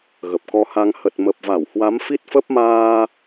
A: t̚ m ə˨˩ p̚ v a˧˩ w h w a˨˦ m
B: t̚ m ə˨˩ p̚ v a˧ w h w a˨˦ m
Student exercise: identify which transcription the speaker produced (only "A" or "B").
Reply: A